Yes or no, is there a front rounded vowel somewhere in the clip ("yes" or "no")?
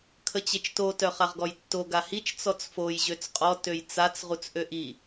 yes